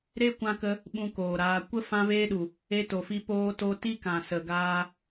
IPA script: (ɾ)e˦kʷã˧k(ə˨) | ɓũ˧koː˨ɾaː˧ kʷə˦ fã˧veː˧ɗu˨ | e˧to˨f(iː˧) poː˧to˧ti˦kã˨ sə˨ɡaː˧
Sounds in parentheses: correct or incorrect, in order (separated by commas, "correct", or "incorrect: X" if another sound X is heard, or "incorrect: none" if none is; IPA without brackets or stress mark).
correct, incorrect: ə˧, incorrect: i˧